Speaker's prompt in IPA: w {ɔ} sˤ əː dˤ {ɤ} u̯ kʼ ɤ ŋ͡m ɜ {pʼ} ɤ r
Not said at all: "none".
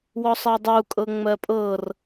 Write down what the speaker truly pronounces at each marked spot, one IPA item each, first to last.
ɔ, o, pʼ

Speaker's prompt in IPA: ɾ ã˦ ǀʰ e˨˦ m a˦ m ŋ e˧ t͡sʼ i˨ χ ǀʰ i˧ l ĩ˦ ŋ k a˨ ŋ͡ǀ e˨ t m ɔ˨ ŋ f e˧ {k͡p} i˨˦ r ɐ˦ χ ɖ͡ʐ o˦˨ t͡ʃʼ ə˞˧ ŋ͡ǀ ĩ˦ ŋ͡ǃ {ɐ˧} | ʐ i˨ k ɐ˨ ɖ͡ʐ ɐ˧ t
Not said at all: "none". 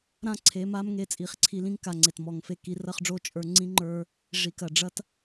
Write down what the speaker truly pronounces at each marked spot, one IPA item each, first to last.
k, ə˞˧

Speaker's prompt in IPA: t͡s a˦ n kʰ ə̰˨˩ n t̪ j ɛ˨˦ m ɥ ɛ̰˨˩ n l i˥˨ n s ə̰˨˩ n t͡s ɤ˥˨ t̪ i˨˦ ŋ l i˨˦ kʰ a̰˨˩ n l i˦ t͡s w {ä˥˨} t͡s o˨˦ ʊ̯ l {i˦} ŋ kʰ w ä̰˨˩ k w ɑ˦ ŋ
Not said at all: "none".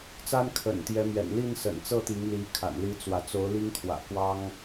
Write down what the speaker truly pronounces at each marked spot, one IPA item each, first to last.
ä˨˦, i˦

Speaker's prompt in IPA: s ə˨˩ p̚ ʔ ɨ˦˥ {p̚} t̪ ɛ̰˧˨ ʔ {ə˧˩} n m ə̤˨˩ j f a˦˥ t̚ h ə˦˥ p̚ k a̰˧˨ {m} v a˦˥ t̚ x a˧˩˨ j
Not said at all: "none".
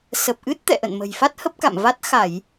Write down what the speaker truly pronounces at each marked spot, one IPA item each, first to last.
t̚, ə̰˧˨, m

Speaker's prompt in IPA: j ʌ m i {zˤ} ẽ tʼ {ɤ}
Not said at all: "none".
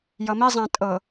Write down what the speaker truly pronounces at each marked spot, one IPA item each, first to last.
zˤ, ɤ

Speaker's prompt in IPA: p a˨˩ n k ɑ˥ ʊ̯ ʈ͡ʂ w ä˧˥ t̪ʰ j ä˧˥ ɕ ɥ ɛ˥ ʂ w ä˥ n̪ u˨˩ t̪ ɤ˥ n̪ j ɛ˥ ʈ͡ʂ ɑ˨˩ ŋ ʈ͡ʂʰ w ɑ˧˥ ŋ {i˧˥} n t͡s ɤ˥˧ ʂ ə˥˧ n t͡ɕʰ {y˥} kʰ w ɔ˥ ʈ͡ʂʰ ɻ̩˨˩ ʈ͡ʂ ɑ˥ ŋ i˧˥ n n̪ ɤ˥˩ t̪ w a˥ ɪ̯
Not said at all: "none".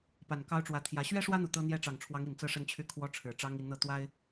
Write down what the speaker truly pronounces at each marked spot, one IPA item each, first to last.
i˨˩, y˥˩

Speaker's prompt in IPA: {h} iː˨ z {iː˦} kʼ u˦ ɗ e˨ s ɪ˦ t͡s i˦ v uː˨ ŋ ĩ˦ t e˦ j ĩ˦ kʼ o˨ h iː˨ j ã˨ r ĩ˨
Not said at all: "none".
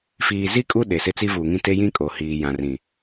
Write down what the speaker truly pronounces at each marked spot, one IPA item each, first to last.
f, i˦

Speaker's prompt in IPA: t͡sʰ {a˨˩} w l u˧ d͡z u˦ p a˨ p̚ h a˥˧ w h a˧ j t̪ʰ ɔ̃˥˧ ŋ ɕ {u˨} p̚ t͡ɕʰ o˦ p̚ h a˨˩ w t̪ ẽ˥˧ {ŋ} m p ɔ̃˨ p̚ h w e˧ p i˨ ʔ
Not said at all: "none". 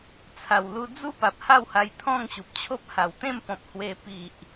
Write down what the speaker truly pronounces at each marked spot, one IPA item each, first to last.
a˨˩, u˨, none

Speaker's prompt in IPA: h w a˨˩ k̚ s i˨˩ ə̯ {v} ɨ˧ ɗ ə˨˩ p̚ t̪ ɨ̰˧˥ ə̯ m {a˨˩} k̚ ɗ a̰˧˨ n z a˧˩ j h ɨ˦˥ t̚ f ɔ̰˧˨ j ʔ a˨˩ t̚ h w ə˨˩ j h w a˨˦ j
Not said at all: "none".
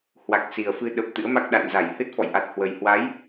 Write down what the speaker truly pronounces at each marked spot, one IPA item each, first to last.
f, a˦˥

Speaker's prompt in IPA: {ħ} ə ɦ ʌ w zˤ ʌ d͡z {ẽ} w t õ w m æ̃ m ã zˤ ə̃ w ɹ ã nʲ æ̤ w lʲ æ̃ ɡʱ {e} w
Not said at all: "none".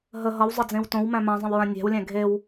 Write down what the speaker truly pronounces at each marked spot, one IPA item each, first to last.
ɦ, ẽ, e

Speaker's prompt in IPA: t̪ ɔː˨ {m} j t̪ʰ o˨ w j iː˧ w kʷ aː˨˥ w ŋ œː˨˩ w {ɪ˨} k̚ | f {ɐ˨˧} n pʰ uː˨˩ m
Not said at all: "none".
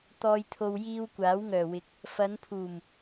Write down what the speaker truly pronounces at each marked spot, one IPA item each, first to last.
none, ɪ˨˥, ɐ˨˧

